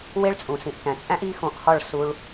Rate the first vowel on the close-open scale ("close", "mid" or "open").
mid